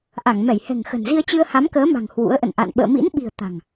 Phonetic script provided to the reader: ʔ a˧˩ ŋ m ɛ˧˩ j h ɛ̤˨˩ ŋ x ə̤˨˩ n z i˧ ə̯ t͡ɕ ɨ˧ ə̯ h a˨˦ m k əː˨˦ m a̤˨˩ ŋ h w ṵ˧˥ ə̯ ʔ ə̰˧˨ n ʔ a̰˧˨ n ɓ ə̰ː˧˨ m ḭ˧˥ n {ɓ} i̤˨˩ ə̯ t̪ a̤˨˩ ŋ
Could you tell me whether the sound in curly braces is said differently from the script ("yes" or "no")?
no